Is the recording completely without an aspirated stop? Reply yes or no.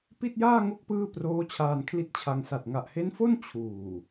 no